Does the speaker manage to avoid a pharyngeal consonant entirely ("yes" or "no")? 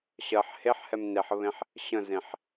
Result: no